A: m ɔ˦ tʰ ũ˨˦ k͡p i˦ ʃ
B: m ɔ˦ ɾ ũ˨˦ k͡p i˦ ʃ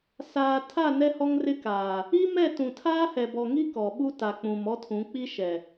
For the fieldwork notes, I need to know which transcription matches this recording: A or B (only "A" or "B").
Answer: A